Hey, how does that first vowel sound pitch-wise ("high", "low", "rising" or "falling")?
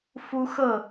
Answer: high